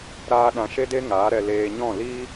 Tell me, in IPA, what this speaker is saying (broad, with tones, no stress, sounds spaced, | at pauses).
ɾ aː˧ ɗ ã˧ ʃ e˦ d e˦ ŋ aː˨˦ ɾ ɛ˧ l eː˧ ɲ ɔ̃˦˨ l i˦